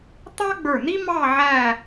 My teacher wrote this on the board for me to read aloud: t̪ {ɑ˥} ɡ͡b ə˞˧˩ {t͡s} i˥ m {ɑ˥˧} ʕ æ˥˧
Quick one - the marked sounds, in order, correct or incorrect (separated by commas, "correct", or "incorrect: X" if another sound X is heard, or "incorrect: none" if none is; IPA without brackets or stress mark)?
correct, incorrect: n̪, correct